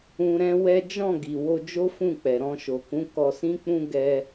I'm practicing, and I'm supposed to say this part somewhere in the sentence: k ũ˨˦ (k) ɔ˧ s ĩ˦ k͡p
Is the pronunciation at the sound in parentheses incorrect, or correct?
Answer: correct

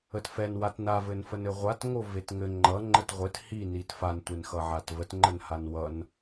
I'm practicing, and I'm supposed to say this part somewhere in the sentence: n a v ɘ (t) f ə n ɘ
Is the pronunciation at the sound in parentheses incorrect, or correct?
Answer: incorrect: n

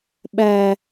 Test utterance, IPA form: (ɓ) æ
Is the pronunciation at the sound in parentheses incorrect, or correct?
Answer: correct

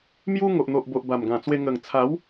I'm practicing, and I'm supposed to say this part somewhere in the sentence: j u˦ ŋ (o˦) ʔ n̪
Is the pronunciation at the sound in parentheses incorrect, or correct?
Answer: incorrect: o˨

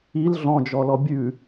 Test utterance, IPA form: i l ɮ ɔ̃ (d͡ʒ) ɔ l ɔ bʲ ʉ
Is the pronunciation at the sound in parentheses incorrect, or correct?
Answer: correct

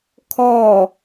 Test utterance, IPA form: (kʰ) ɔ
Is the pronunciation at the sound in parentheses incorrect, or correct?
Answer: correct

